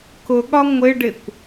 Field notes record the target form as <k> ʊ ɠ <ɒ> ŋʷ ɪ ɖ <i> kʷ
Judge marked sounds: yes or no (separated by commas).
yes, yes, no